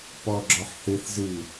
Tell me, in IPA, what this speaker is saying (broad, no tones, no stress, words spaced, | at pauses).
pɔɡ͡ǁɔħ θɨθ zɨ